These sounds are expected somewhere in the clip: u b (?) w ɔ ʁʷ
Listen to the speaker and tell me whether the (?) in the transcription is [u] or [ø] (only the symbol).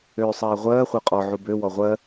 ø